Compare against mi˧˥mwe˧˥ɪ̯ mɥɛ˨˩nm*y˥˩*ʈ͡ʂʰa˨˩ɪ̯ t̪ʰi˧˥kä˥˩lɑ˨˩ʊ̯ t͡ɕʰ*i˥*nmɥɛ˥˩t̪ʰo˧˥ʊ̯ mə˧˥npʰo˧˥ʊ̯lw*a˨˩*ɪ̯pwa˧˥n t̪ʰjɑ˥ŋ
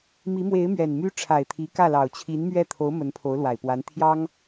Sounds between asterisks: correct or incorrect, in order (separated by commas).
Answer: incorrect, incorrect, correct